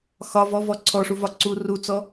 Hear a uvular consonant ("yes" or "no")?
no